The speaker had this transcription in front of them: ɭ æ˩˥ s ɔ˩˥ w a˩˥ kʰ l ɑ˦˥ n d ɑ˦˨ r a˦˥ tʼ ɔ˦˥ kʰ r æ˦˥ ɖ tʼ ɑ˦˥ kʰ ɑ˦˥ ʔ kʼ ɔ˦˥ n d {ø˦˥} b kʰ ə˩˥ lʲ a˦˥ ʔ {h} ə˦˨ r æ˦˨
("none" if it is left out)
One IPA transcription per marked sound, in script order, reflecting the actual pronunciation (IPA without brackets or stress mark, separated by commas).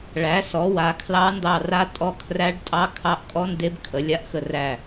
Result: e˦˥, x